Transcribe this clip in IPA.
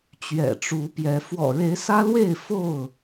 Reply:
t͡ɕɥɛ̰˨˩ʈ͡ʂu˨˦pjɛ˨˦ fwɔ̰˨˩ɻe˨˦ɪ̯ sä˦lwe˥˨ɪ̯ fo˥˨ʊ̯

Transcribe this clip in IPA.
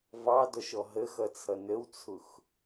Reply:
vɑdɔʃɔ ɦəxʌt͡sʰʌ nəwt͡sʰʊx

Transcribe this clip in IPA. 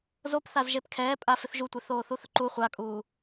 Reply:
zopθazʒep kʰɛːpʼa fɪθʒutʷeθoː θuθʊǃu χʷakʼuː

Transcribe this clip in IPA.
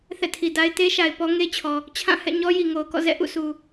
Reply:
θɛ̰˦˨tʰi˨da˦ɪ̯ te˦ʃa˨ɪ̯ pɔ˦ŋe˦t͡ɕʰɔ˨ | t͡ɕʰã˦˨ hɛ̰˦˨ɲɔ˦ ji˨ŋo˨ʊ̯kɔ̰˦˨ zɛ̰˦˨ʔṵ˦˨sʰu˨

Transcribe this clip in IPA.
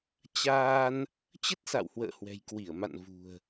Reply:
t͡ɕaː˧n | t͡ɕə˦˥t̚sa̰˧˨whwə̰ː˧˨ hwɛ̤˨˩jkwi˧˩ə̯ma̰˧˨n vṳ˨˩ə̯

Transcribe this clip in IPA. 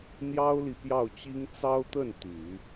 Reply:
n̪jɑ˥ʊ̯li˨ pjɑ˥˩ʊ̯t͡ɕi˥ŋ t͡sɑ˥ʊ̯t̪ə˥˩n t̪y˨˩˦

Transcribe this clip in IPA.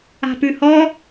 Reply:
a̤pʉhɔ

